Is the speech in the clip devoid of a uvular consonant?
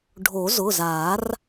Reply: yes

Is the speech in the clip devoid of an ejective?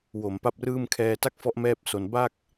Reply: yes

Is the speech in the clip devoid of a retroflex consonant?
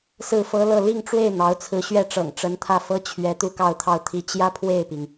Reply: no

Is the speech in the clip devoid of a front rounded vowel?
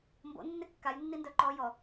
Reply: no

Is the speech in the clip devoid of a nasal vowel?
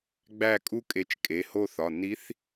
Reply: yes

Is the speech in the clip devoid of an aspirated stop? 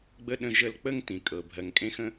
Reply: yes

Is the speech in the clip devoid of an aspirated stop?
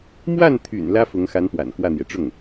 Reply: no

